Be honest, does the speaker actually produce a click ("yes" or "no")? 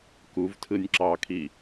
yes